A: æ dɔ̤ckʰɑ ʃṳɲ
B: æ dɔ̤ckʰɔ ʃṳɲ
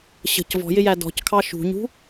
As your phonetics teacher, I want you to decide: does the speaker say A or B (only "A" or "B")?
A